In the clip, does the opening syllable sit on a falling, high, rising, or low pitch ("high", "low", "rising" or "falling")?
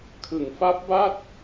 low